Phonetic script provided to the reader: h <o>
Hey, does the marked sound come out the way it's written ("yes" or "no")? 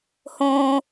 no